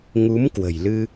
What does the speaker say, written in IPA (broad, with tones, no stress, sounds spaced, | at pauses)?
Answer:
ŋ u˨˦ m k w ə̤˨˩ j l ɨ˧